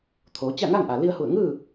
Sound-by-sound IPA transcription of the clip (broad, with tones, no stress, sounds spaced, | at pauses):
t̪ʰ oː˩˧ t͡ɕ a˥˨ ŋ a˥˨ ŋ ʔ a˩ l i˧ ə̯ h u˧˩ ə̯ ŋ ɯː˥˨